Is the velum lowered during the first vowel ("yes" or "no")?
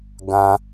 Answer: yes